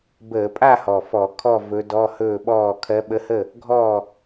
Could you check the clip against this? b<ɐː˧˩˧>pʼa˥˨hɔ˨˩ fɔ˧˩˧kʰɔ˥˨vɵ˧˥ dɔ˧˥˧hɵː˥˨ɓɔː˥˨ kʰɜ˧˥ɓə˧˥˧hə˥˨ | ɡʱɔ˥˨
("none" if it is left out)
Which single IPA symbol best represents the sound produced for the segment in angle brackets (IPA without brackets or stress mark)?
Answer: əː˧˩˧